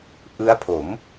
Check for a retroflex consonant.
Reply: absent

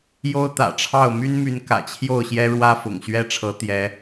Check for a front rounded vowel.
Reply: present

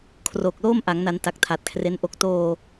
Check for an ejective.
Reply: absent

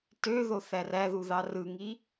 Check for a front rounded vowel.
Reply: present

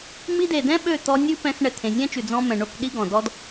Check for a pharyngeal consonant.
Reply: absent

